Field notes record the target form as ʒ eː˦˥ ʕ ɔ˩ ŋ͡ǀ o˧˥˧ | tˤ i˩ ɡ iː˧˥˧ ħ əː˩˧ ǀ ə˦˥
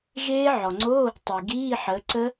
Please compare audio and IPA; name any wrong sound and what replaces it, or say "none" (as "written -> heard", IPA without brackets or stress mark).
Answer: none